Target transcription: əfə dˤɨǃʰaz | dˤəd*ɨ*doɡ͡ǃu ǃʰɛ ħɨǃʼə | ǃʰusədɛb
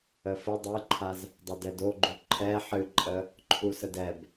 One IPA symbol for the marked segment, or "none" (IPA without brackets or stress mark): ɛ